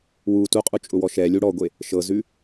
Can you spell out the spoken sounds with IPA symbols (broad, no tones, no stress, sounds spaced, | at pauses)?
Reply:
w u t u qʼ u t͡ʃʼ ʊ w ɔ ʃ ɛ lʲ u ɽ ɔ ɡʷ e | ʃ ɤ z ʉ